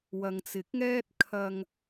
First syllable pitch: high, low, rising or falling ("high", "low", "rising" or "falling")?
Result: low